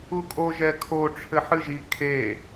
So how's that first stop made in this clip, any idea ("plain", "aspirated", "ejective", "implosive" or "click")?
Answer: ejective